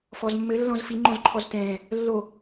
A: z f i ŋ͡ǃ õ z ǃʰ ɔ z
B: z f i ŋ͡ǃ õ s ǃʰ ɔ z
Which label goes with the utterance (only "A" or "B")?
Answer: A